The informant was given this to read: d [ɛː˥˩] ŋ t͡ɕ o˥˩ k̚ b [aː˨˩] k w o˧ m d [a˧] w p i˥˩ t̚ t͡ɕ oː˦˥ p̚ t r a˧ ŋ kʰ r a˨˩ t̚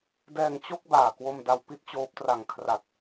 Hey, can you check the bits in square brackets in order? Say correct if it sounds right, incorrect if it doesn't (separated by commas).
incorrect, correct, correct